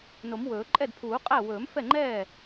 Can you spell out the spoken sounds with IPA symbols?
no˨˩˦m wɵː˨˩˦ ǃʼɛ˥˩dpʰuː˨˩˦qʼæ˥˩ wɵː˨˩˦mfɛ˥˩ŋ͡ǃɛː˥˩

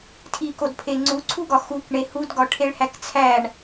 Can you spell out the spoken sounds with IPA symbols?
tʰikodpʰe ŋ͡ǀuǀʰuɡɒ xukɳe hudɡɒʈʰeɭ hækt͡sʰæɳ

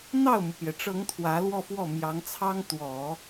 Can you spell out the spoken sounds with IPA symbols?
n̪ɑ˥˩ʊ̯mu˩pjɛ˩ʈ͡ʂɤ˧˥ŋ t̪ʰwä˧˥ lwɔ˥˧fwɔ˥˩mjɑ˧˥ŋt͡sʰɑ˥ŋ t̪wɔ˨˩˦

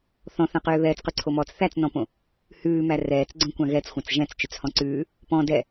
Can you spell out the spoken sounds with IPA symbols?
θɔ̃θãqøː βɛːt͡sqʉǀʰomɔːt͡s θæt͡snɔ̃põ | hʉːmæ rɛːt͡sɡ͡ǀõkʷã ɣɛt͡sxʷãt͡s ʒɛ̃t͡st͡ʃøt͡shɔ̃ ǀʉː | pɔ̃ dɛ

